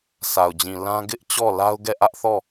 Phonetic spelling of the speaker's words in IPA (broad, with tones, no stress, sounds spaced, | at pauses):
sʰ a˨ ʊ̯ d͡ʑ ĩ˨ l ã˦ ɡ ɪ˦ ʔ t͡ɕ ɔ˦˨ l a˦ ʊ̯ ɡ ɛ˦˨ ʔ ä˦ ʔ θ ɔ˦˨